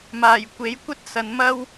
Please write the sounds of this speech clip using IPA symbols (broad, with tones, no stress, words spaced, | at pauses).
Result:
maː˨˩jkʷe˨˥jkʷɐ˥t̚ sɐ˨n mɐ˥w